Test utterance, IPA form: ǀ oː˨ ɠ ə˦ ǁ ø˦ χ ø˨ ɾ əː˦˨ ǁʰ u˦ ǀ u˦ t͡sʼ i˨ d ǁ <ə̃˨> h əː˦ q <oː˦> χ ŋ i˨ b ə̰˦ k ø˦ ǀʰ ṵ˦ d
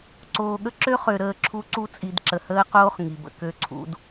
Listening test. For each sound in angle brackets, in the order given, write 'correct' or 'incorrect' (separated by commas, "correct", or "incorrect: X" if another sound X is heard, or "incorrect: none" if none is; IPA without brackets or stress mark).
incorrect: ə˨, correct